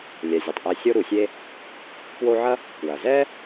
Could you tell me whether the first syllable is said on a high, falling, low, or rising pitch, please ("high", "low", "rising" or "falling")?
low